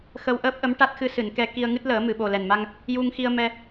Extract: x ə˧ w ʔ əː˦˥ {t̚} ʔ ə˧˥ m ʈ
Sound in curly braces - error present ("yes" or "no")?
yes